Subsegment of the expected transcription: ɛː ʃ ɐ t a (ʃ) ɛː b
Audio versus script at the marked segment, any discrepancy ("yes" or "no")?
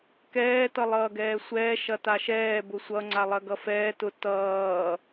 no